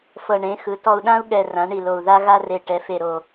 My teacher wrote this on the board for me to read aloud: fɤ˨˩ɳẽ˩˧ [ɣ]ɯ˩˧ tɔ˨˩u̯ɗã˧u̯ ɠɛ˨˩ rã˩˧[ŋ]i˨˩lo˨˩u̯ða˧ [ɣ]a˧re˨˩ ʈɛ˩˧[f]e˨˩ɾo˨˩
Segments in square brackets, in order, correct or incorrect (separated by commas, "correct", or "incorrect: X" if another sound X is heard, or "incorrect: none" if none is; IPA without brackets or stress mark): incorrect: x, incorrect: ɳ, correct, correct